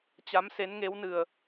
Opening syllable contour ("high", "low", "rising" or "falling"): rising